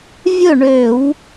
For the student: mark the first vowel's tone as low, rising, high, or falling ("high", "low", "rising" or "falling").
falling